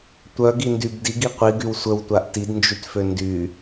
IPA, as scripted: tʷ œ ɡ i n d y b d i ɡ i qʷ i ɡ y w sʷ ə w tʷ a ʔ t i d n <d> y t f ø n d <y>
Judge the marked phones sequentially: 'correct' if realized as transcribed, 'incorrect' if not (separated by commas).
incorrect, correct